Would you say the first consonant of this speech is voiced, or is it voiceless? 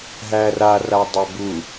voiced